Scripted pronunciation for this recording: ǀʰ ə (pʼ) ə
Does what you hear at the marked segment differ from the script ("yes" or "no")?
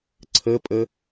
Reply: no